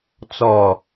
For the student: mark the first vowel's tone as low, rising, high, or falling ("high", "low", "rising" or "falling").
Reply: low